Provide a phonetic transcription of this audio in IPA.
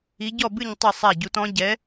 i˧˥ ɟ ɔ˥˨ b ɨ˥˨ ɲ tˤ ɘ˥˨ sˤ a˥˨ ɟ u˧˥ t ɔ̃˧˥ ɟ ɛ˧˥

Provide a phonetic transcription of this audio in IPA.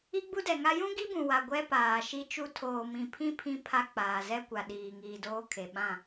i˦ ɡ͡b u˦ d ɛ˨ ŋ a˦ j ũ˦ ɡ i˦ b ũ˨ w a˨ ɡʷ ɛ˦ p aː˨ ʃ i˦ t͡ʃ u˦ tʰ oː˨ m ĩ˨ pʰ ĩ˦ pʰ ĩ˦ pʰ a˦ k͡p aː˨ z ɛ˦ kʷ a˨ ɗ iː˨ ŋ iː˨ d oː˦ kʰ e˨ ɓ ã˦˨

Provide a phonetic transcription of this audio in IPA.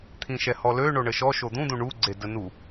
t̪ʰ ĩ ʃ ɛ h ɔ l ø ɳ o ɳ ə ʃ ɔ ʃ o d̪ ũ d̪ ũ ɳ u ɡ͡ǀ e d ə n u

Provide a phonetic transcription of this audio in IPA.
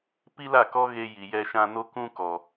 p i˦ l a˦˨ k ɔ˦ ɣ e˧ j i˨ j ɛ˧ ʃ ã˧ n o˦ k ũ˦ k ɔ˨

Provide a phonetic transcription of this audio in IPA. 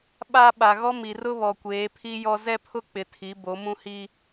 ɓ a˦ ɓ a˨ ɣ ɔ˦ m i˨ r ʊ˦ β ɔ˨ kʷ eː˨˦ pʰ i˦ j ɔ˦ z ɛ˦ pʰ ʊ˦ k͡p ɪ˨ tʰ i˨˦ b o˨˦ m ũ˦ h i˦

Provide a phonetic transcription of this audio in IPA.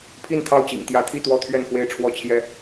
pʰ i˥˨ n t̪ʰ ɑ˥˨ ʊ̯ t͡ɕ ḭ˨˩ ŋ t̪ j ä˨˦ t̪ʰ i˥˨ t̪ w ɔ˥˨ t̪ʰ ɥ ɛ˥˨ n f w e˥˨ ɪ̯ ʈ͡ʂʰ w ɔ˥˨ t͡ɕʰ j ɛ˦

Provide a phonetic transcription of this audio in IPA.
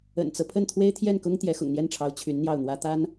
ə̰˨˩ n t͡s ɤ˦ pʰ ə˥˩ n t̪ʰ w e˥ ɪ̯ t̪ʰ j ɛ˥˩ n k ʊ˥ ŋ t̪ j ɛ˧˥ x ʊ̰˨˩ ŋ n̪ j ɛ˥˩ n ʈ͡ʂʰ ɑ˧˥ ʊ̯ t͡ɕʰ y˧˥ n n̪ j ɑ˥˩ ʊ̯ n̪ w ä˥ t̪ a˥ n

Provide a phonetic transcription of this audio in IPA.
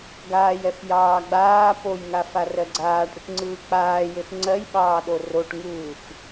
ɡ aː j ɛ f j ɑː ɡ͡b aː p o j ŋ a f a r ɜ ɡ͡ǀ aː ʈ ɽ ɯ ʈ ŋ͡ǀ ɯː k͡p aː j e f ŋ͡ǀ ɜ j ɓ ɑː ɗ o r o ʈ ŋ ɯː f

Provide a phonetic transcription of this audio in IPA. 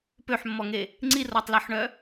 p ø ħ mː ɔ ŋ e | ŋ͡ǀ i r ɔ tˤ l œ ħ ɳ œ

